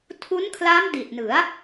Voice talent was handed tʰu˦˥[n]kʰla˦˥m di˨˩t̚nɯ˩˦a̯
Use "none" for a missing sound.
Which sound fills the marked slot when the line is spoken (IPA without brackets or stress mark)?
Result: n